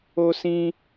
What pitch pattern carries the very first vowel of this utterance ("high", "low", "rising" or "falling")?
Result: high